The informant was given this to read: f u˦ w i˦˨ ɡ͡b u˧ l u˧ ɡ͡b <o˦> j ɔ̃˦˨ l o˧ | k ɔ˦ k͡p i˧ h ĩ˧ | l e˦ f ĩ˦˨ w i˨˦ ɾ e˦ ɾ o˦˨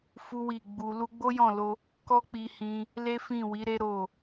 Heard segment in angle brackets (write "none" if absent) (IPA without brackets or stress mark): o˦